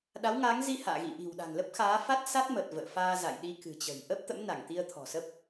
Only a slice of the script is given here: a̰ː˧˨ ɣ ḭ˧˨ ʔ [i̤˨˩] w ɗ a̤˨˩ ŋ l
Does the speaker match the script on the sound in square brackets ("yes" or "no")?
yes